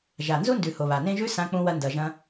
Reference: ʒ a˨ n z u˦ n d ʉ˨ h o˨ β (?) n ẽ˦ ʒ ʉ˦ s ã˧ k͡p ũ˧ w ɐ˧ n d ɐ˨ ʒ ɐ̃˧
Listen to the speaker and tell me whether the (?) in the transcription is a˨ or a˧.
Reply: a˨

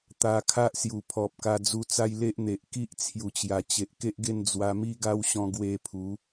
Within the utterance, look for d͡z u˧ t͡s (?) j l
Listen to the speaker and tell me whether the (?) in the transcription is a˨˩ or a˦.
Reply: a˦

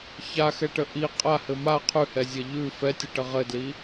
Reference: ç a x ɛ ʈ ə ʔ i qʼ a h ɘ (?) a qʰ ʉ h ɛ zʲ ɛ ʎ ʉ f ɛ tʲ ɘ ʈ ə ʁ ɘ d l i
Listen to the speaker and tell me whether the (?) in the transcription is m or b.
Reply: m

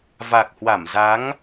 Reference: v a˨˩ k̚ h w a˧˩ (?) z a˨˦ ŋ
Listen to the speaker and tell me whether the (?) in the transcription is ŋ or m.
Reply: m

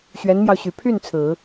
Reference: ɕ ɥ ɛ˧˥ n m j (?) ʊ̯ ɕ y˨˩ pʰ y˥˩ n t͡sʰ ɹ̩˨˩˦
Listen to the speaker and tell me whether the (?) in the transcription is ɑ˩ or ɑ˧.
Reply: ɑ˧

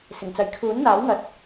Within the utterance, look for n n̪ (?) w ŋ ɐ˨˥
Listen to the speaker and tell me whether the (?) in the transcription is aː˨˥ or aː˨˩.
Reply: aː˨˥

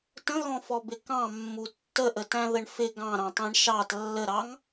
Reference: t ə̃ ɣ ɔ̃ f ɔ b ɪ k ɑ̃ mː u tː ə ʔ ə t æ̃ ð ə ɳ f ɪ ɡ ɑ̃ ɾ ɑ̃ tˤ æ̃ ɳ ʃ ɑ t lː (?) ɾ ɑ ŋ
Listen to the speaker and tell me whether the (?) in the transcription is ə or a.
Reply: ə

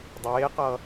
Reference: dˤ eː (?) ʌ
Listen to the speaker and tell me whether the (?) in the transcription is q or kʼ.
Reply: q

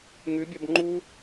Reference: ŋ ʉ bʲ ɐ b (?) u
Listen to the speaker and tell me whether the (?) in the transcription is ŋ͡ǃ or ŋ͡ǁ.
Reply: ŋ͡ǃ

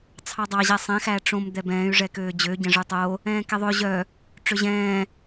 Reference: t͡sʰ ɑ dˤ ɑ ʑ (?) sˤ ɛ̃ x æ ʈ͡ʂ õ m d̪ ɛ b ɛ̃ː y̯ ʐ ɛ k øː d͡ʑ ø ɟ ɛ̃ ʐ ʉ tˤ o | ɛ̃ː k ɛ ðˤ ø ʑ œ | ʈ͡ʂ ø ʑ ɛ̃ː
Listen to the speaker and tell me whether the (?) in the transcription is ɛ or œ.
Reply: ɛ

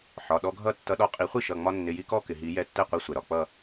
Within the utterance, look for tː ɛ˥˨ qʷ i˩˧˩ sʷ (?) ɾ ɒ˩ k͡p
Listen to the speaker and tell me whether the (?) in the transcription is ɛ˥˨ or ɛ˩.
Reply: ɛ˩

